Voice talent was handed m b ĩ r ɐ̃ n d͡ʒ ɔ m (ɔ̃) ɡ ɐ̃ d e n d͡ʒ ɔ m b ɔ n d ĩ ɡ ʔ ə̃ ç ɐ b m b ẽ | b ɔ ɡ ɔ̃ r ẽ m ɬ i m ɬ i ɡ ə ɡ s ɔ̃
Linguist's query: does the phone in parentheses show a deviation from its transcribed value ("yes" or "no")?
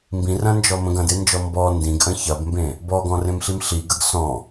yes